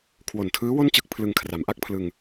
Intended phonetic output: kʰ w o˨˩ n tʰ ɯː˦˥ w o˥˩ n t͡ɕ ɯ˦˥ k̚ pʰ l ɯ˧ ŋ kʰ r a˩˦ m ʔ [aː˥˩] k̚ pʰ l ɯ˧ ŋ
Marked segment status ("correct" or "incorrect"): incorrect